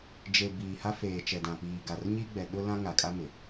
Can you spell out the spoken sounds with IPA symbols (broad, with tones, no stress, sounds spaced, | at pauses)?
d͡ʒ e˨ b iː˨ h a˦ f eː˨ t͡ʃ ɛ˨ d ã˨ p iː˨ ɡ a˨ r ɲ i˦ ɡ͡b ɛ˨ ɗ ʊ˦ l ã˦ ŋ a˨ kʼ a˦ m ɪ˨